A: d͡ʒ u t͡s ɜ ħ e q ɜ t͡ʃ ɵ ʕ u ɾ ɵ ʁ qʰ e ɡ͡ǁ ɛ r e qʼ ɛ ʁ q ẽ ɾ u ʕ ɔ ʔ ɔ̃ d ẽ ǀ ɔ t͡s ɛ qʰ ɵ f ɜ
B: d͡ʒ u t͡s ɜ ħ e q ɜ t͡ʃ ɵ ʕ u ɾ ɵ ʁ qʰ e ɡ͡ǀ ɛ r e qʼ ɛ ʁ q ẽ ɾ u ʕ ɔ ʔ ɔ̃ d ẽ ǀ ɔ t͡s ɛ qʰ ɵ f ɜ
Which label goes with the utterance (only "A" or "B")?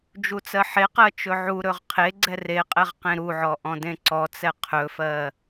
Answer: B